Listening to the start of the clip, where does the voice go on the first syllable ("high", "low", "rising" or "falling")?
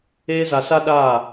high